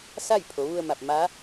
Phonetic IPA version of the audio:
s a˥˨ j pʰ o˩˧ ʋ u˧ ə̯ m a˧˩ p̚ m a˧˥

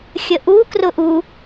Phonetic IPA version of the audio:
xʲ ə ʔ u k r ʊ ʔ u

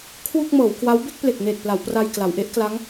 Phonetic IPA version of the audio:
kʰ w u˥˩ k̚ m ɤː˩˦ w k w a˦˥ w b e˥˩ k̚ p l e˨˩ k̚ n eː˨˩ t̚ p l a˩˦ w p r a˧ j k l a˩˦ w ʔ e˦˥ ʔ k l a˦˥ ŋ

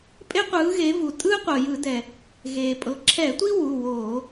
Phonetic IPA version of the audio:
pʼ e˥ qʷ ɯː˨˦ ɣ e˨˦ v u˩ tʼ ɯː˥ qʷ ɤ˩ j ɯ˧˩˧ d ɛ˩ | ɣ eː˩ pʼ ɤ˩˧˩ ǁʰ ɛ˧˩˧ tʷ i˥ w u˩˧˩ w oː˧˩˧

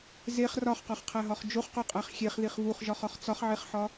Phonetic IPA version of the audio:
z e χ r ɒ χ q ɒ χ qʰ æ ɦ ɒ χ d͡ʒ o χ q o qʼ æ χ xʲ e χ ð i χ v u χ ʒ ɒ χ ɒ χ t͡s ɒ χ ʕ e χ ħ ɒ

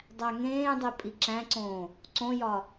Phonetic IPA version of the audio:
dˤ æ ŋ ẽː dˤ e pʼ i ǁ æ̃ ǀ õː | ǀ õ j ɒ

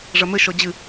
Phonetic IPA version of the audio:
ʐ ɐ m ɘ ʃ ɔ d͡ʑ ɨ

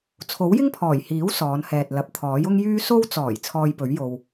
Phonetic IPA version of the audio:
t͡sʰ o˨˥ w j ɪ˥ ŋ pʰ ɔː˨˩ j h iː˨˥ w s ɔː˨˧ n h ɛː˨ t̚ l ɐ˨ p̚ t̪ʰ ɔː˨˥ j ʊ˥ ŋ j yː˥ s o˧ w t͡s ɔː˨˩ j t͡sʰ ɔː˧ j p ɵ˨˥ ɥ j o˨ w

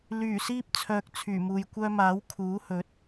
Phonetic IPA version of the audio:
l yː˨˩ s iː˥ p̚ t͡sʰ œː˧ k̚ t͡sʰ yː˨˩ m uː˨ j kʷ œː˥ m aː˨˥ w kʰ uː˨˥ h ɵ˨˥ t̚

